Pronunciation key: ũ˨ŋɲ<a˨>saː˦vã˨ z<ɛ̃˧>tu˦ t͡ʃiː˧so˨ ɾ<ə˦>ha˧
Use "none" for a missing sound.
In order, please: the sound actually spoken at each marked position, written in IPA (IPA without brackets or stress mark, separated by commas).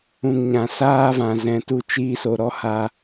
ã˨, ɛ̃˧, ɔ˦